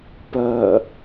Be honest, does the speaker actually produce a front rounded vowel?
yes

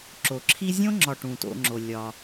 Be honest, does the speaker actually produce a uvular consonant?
no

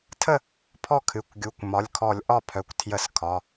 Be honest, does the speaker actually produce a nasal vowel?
no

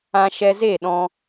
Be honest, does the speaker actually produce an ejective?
no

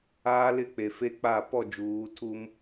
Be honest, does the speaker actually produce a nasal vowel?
no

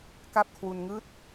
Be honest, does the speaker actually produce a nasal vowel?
no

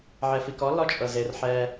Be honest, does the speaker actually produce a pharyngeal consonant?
yes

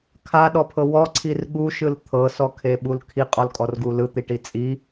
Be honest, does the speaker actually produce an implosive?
yes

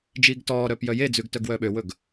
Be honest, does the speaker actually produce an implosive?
yes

